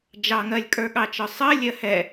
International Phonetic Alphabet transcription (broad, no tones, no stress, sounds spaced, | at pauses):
d͡ʒ ɑ ŋ ɜ lʲ kʼ ə˞ ɠ ɑ t͡ʃ ɒ sˤ ɜ lʲ ɜ h ɛ